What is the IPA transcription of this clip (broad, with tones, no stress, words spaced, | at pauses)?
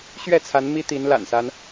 ɕɥɛ˥˨t͡sʰa˨˦n mi˦t̪i˨˦n la̰˨˩nsa˦n